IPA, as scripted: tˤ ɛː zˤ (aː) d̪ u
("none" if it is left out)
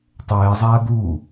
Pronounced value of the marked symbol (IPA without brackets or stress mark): aː